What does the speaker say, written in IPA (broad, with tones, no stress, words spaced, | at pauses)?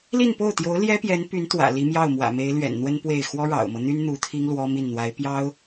li˥˧npo˥˩ʊ̯t̪jo˧˥ʊ̯ ljɛ˥pjɛ˧˥n py˧˥nt̪wä̰˨˩ li˧˥mjɑ˥˩ʊ̯mwä̰˨˩me˧˥ɪ̯ lɥɛ̰˨˩nn̪wə˥n pwe˥˩ɪ̯ xwɔ˥ɻɑ̰˨˩ʊ̯mɤ˦n̪y˥n n̪u˧˥t̪ʰi˥ŋ lwɔ˥mi˥˩n n̪wa˧˥ɪ̯pjɑ˥ʊ̯